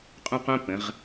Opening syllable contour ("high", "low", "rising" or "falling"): high